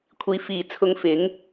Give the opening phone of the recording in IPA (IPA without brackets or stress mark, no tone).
kʷʰ